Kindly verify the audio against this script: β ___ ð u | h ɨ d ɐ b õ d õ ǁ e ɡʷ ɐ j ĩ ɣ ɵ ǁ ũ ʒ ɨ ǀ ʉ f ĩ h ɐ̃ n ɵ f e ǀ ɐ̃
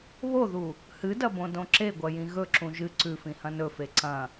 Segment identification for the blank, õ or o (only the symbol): o